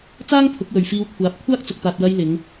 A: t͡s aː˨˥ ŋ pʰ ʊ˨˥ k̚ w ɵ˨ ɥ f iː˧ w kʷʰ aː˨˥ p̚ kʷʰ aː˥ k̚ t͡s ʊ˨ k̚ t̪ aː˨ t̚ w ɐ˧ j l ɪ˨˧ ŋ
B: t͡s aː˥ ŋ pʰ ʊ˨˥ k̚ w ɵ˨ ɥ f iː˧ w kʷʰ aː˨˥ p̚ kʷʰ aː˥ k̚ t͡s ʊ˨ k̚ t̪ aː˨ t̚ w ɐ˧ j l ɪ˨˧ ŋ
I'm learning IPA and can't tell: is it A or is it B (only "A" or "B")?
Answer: B